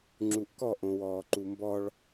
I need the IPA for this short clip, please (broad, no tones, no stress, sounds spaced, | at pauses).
ŋ͡ǁ u ʔ k ɔ ʔ õ w ɔː ǃ u m b ɔ ɭ